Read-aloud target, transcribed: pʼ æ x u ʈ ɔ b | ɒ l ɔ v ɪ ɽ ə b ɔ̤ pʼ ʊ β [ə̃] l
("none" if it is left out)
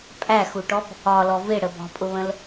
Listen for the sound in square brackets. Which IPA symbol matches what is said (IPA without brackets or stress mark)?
ə̃